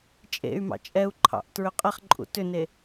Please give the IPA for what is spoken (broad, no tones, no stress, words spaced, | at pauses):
t͡ʃʼḛy̯mɑ̰ t͡ʃʼɛu̯ǃʰɑ̰ʔ tɹʏqʼɛχǃʼṵ tʏne